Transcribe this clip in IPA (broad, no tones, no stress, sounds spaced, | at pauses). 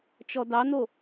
t͡ʃ ɔ d ɑ n o